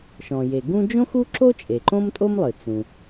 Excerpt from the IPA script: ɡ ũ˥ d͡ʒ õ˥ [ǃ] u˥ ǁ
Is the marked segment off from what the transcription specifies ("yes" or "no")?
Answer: yes